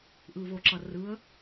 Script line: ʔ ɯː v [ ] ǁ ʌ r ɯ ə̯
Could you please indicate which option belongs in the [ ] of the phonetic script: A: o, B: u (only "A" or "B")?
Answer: A